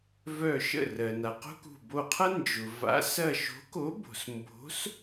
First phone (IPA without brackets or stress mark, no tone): v